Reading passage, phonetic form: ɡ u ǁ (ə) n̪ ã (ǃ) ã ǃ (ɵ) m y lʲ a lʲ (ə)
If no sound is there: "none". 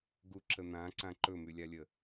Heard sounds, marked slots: ə, ǀ, ɵ, ə

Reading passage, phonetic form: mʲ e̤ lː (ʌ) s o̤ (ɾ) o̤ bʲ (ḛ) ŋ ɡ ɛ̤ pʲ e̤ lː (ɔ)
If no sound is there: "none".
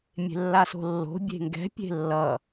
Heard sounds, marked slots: a, lː, e̤, ʌ

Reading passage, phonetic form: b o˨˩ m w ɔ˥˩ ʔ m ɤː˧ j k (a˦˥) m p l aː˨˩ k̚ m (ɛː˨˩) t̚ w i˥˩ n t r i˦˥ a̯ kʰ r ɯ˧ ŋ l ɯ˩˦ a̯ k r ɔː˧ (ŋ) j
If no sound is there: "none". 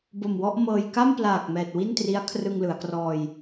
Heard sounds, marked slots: a˥˩, ɛː˨˩, none

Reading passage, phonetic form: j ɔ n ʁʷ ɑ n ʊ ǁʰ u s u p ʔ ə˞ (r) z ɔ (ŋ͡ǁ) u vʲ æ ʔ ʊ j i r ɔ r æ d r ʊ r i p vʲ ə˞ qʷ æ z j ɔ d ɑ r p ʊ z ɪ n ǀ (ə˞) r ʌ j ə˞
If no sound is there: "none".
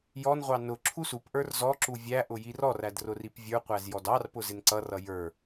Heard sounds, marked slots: r, ǁ, ʌ

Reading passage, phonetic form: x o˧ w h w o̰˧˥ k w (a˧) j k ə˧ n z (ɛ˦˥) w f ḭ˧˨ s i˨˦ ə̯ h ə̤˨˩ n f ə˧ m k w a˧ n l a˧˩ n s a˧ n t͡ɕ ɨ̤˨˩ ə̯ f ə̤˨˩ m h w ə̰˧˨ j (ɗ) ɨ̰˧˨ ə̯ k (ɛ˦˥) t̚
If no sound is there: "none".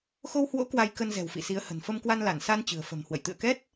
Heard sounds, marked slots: a˧, ɛ̤˨˩, t̪, ɛ˦˥

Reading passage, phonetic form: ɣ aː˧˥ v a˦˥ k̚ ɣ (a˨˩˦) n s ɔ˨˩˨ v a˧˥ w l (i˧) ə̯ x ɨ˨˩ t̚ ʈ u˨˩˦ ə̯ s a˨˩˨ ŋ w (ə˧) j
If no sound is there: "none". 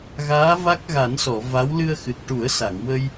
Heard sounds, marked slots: a˨˩˦, ɨ˧, ə˧

